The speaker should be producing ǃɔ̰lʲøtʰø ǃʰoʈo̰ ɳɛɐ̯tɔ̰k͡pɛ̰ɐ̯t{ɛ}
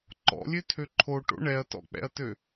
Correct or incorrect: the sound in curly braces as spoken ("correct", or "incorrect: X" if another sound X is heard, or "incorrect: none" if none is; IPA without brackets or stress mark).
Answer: incorrect: ø